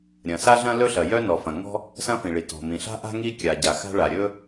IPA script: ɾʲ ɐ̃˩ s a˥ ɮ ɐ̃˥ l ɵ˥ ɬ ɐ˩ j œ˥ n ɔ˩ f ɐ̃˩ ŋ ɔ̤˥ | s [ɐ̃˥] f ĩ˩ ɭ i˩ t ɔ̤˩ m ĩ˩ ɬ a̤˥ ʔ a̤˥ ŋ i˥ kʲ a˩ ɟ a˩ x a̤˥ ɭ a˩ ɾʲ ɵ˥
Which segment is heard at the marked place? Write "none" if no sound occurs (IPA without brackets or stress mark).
ɐ̃˥